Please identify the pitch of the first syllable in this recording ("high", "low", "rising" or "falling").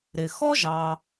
low